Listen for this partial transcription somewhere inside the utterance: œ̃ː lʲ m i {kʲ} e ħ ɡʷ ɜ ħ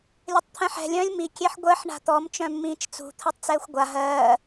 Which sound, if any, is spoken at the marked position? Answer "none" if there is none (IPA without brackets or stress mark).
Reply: kʲ